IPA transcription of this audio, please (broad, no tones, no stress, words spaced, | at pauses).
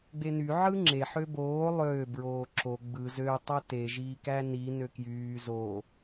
ɡ͡beny ʕɯŋ͡ǁe ħøboː lˠøː bɹoːǁo ɡ͡bɯ zø tˤæte ʒiːkæni nøkjyː zo